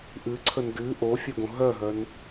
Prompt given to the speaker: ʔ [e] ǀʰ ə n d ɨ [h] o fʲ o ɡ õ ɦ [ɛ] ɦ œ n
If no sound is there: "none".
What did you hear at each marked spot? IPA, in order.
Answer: ɨ, ʔ, œ

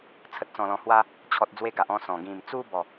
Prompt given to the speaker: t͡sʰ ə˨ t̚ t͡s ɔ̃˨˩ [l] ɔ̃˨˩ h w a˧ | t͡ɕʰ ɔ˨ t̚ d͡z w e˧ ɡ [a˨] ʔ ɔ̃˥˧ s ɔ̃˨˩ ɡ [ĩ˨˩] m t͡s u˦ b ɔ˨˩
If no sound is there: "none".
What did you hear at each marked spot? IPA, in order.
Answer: l, a˨, ĩ˨˩

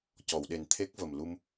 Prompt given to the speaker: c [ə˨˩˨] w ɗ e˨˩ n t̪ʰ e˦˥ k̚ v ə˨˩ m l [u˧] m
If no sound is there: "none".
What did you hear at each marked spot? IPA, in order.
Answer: ɔ˨˩˨, u˧

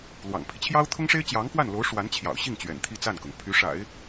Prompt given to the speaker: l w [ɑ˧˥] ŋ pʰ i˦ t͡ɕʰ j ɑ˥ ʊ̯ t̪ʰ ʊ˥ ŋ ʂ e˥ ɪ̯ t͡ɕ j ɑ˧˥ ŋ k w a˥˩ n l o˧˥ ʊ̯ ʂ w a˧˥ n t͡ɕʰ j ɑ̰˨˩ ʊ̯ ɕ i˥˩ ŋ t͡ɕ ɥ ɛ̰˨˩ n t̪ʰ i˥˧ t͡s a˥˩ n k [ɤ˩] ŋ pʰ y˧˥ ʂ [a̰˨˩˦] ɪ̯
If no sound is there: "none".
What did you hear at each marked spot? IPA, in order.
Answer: ɑ̰˨˩, ɤ˩, a̰˨˩˦

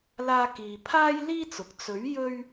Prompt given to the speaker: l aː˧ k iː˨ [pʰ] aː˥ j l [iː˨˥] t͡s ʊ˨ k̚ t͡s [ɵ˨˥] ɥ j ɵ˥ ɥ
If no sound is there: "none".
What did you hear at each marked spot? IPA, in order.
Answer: pʰ, iː˥, ɵ˨˥

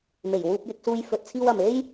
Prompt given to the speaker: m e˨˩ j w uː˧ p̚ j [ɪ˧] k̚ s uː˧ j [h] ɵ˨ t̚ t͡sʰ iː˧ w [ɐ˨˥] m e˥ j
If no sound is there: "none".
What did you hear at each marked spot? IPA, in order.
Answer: ɪ˧, f, ɐ˨

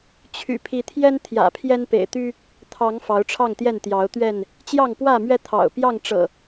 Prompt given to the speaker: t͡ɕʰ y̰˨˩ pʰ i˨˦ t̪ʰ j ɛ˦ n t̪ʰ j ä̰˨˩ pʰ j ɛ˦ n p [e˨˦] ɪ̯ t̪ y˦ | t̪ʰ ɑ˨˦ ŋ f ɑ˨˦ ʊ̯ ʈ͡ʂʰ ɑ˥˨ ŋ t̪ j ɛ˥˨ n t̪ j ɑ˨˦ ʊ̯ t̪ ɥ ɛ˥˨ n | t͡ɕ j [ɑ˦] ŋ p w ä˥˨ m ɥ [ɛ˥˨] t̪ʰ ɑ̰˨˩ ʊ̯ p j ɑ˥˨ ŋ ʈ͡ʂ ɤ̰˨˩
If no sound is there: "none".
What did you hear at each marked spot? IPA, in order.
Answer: ḛ˨˩, ɑ˥˨, ɛ˦

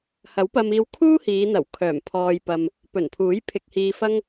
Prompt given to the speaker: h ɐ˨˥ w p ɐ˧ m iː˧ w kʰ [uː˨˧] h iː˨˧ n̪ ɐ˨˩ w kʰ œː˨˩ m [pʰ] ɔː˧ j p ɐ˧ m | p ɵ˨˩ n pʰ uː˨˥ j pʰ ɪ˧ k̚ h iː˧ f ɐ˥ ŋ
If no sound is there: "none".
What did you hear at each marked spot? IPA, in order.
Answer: uː˥, pʰ

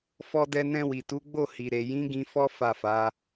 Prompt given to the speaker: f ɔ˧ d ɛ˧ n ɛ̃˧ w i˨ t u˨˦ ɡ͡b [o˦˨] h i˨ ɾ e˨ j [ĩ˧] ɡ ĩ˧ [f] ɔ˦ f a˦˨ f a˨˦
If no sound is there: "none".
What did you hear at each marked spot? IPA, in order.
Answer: o˦˨, ĩ˨˦, f

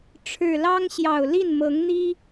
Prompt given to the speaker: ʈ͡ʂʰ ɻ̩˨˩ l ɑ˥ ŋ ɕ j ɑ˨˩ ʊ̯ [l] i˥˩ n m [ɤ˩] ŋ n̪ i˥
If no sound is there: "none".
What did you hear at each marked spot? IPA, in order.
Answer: l, ɤ˧˥

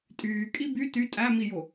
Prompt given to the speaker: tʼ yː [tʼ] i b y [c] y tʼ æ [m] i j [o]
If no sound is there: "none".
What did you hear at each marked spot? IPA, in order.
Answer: kʼ, t, m, o

